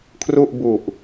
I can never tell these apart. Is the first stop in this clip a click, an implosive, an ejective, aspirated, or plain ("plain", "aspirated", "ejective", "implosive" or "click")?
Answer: aspirated